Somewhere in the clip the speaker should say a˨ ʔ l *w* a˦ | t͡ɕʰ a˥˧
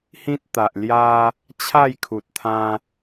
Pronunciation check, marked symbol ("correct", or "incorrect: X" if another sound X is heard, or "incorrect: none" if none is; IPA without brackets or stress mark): incorrect: j